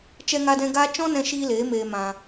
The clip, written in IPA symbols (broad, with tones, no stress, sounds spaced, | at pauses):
t͡ʃ ɛ˦ ŋ a˦ d ɛ̃˦ ɡ aː˦ t͡ʃ ɔ̃˦ n ɛ̃˧ ʃ iː˧ l eː˨˦ m eː˧ m ã˧